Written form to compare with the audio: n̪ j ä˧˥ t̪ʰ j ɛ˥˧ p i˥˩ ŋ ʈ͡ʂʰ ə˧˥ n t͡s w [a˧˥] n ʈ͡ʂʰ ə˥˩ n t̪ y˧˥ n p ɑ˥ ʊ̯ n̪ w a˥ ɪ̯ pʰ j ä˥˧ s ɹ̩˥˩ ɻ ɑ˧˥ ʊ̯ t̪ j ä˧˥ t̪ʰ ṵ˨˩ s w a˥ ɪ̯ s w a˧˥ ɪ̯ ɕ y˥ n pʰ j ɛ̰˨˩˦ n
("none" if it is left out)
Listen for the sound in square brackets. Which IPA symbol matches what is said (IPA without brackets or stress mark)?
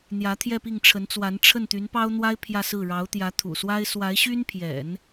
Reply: a˧˥